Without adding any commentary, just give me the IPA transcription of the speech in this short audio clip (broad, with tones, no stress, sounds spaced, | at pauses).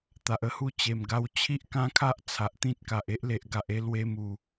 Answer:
t̪ a˨ ʔ ə˥˧ h u˥˧ t͡ɕ e˨˩ m ɡ a˧ w t͡ɕʰ i˦ ʔ k ã˦ kʰ a˦ ʔ t͡sʰ a˨ ʔ t̪ ĩ˦ t̚ k a˨ ʔ e˦ ʔ l e˨ ʔ ɡ a˨ ʔ e˧ l w e˧ m u˨˩